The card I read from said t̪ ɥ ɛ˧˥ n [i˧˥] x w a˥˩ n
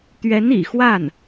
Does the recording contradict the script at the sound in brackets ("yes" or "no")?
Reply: yes